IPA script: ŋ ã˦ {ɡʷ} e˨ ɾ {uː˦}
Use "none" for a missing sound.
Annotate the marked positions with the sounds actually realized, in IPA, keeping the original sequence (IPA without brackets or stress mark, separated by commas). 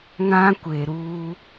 kʷ, uː˦